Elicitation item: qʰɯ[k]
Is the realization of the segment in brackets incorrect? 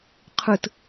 yes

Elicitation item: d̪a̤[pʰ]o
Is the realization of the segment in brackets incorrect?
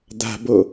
yes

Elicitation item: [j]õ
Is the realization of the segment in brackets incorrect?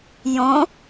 no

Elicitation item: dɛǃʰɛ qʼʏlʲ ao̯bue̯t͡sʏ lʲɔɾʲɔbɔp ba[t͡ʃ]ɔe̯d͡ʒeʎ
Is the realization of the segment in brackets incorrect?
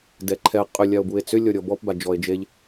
yes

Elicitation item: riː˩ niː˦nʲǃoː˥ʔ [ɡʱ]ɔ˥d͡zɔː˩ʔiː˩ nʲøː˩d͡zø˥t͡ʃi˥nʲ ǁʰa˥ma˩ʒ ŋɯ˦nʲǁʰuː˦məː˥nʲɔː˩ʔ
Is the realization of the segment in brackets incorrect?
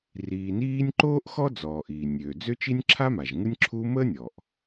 yes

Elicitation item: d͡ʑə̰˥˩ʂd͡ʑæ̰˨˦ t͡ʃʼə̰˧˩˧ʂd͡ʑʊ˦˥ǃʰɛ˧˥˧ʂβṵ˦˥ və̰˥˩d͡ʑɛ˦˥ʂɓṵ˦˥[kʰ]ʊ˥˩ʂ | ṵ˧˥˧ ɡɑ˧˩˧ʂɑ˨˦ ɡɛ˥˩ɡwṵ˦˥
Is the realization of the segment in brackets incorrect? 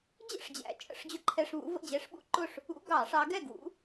yes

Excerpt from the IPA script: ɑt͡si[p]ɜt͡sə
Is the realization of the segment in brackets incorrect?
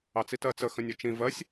yes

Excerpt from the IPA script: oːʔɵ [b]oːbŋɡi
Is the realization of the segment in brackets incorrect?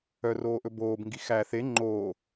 no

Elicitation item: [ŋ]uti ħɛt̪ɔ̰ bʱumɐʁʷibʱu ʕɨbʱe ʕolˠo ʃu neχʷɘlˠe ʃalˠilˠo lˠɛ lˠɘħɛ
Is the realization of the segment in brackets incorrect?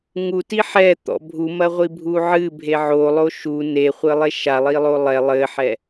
no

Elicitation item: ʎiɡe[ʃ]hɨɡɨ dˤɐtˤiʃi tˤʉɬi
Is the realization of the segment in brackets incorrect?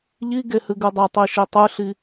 yes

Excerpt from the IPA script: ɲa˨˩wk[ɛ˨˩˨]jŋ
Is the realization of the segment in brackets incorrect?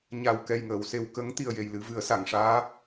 yes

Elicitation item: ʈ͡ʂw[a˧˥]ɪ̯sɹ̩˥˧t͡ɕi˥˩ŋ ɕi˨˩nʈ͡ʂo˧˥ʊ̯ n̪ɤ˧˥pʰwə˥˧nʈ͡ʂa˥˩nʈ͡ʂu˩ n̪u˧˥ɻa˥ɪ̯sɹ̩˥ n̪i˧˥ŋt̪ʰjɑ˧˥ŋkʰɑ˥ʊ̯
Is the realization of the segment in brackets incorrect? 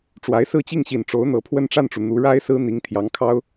no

